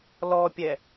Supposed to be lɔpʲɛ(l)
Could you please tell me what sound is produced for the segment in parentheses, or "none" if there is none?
none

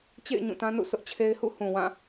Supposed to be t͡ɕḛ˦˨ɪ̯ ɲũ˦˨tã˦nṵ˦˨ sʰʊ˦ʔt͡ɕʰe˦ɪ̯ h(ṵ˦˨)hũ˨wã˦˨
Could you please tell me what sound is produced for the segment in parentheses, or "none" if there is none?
ṵ˦˨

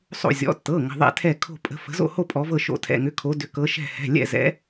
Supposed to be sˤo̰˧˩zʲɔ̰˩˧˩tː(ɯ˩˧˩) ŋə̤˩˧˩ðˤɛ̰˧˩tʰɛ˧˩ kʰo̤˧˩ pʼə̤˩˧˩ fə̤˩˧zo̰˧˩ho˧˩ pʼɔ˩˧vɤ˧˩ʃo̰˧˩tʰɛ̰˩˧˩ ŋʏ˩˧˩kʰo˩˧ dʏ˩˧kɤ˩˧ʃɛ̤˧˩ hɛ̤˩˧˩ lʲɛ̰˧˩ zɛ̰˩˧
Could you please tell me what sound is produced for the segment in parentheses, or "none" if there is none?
ɤ˩˧˩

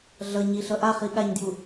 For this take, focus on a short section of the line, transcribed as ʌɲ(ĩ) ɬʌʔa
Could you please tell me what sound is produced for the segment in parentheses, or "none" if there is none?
i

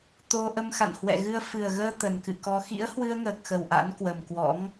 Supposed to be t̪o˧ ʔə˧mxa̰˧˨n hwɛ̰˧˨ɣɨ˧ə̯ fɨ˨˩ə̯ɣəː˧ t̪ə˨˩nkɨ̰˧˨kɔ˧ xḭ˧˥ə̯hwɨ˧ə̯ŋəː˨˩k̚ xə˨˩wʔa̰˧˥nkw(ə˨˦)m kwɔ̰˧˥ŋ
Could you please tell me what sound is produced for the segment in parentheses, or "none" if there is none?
ə˨˩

